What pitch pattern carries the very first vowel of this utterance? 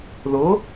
rising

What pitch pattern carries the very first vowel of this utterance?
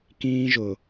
high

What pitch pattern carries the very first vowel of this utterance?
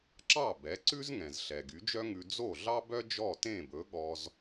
falling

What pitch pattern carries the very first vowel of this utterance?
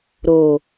low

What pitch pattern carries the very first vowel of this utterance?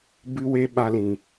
high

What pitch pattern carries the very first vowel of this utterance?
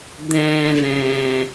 low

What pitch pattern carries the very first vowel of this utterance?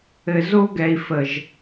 low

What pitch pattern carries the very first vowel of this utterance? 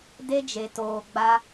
high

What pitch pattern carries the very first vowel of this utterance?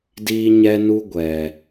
high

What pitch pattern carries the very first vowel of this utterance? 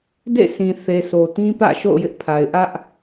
falling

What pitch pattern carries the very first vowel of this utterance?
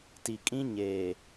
low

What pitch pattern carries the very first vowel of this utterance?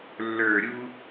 low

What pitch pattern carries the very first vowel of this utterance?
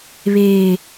high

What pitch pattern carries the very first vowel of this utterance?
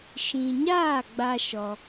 low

